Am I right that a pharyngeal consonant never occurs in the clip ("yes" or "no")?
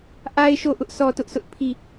yes